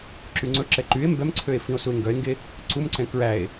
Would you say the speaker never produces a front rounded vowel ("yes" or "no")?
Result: no